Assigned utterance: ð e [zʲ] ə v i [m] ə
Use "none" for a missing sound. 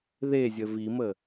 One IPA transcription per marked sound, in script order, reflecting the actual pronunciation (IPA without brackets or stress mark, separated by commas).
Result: zʲ, m